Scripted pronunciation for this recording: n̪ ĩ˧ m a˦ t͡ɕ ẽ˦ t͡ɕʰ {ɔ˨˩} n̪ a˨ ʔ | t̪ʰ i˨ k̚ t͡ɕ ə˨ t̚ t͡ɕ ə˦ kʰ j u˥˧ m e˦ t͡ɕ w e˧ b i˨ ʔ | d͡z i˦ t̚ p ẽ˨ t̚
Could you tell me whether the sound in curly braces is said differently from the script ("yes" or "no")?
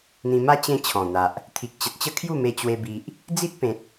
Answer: yes